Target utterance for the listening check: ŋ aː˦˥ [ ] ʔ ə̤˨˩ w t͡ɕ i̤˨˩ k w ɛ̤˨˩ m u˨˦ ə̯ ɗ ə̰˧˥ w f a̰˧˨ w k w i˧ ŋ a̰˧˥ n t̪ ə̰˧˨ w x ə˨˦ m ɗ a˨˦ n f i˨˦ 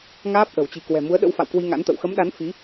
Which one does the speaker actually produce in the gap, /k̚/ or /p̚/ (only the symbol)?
p̚